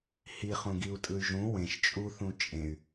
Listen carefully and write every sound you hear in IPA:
h i χ ũ ɡ i u̯ tʼ ɯ y̯ ʒ ũ w ẽ ʃ t͡ʃʼ u θ ũ t͡ʃʼ ẽ y̯

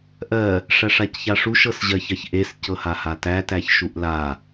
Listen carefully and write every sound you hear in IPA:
ʔ ɜ | ʂ æ ʂ a c ç a ʂ u ʃ ɤ s ʑ ɜ ç ɜ ç ʔ e s c ɤ h a h a t æ t æ ç ʃ u ʔ l a

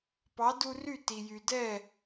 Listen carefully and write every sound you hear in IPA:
p ɑ˩˥ d u˧ r y˥˩ t i˩ j y˩ d ɛ˥˩

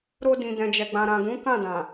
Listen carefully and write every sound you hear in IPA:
ɾ o˧ d ĩ˨ d ɛ̃˨ d͡ʒ ɛ˨ ɡ͡b ã˨ ɾ ã˨ ɡ ũ˨˦ k ã˦˨ d ã˨

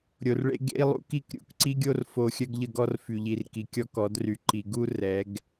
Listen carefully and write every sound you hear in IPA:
ɾʲ o˨ r ɭ ḛ˦ ɡ ḛ˦ i̯ lˠ ṵ˦ k i˦˨ k ɾʲ ṵ˨ k ǀ i˦ ɡʲ o˦ r f o˨ xʲ œ˦ ɡ ʎ ə˦˨ ɡ ɔ˦ r f y˨ ʎ i˨ r k i˨ kʲ ɔ˦ k ɔ˨˦ d r y˨ ǃ i˨ ɡ u˦ r ɛ˨˦ ɡ

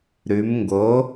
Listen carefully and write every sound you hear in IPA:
ɾ ʉ˩˧ m ŋ ɡ o˩˥

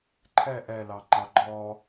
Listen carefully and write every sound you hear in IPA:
ǃʰ ɛ ʔ ɛ l ɑ ŋ͡ǃ ɑ ɡ͡ǃ ɔ

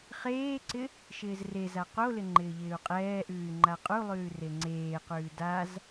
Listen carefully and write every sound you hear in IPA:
χ eː ǀ ɪ | ʃ ɪː z r e z a q o l ɪ ŋ͡ǃ ɪː ʎ ɪː u̯ qʼ ɛː ʔ ʉː y̯ ŋ͡ǃ a qʼ u lˠ ʉː r e ŋ͡ǀ eː q ʉː d a z

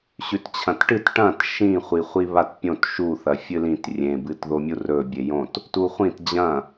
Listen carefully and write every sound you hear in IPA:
ɕ ʉ t t͡ɕʰ ɐ̃ t ʈ ɨ t ʈ ɐ̃ t ʃ ĩ χʷ i χʷ i β a t pʲ õ t ʃ u θ ɐ fʲ ɨ l ĩ t rʲ ẽ b ɨ t ð o mʲ u r ɵ bʲ e j õ t | t u χʷ ĩ t d͡ʑ ɐ̃

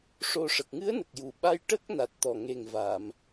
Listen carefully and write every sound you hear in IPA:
ʂ o˧ ʂ ə˨˩ k̚ ŋ ɨ˧˥ ə̯ n ə˨˩ k̚ j u˨˩ ɓ a˧ j ʈ ə˦˥ k̚ n a˨˩ t̚ t̪ ɔ˨˩ ŋ e˨˩ ŋ v a˨˩˨ m

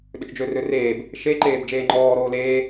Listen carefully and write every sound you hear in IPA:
ɗ ʏ t͡ʃ d͡ʒ ø r ø r eː b | ʃ e ǃ eː b d͡ʒ eː ŋ͡ǃ ɔː ɾ oː l eː

